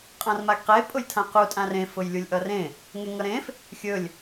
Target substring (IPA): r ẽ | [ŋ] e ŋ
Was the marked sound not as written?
no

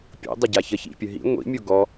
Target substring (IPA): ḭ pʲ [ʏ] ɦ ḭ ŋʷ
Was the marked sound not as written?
yes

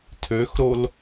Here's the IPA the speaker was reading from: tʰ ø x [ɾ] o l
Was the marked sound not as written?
no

